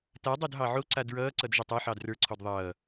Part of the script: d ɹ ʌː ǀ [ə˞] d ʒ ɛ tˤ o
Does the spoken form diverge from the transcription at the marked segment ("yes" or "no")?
yes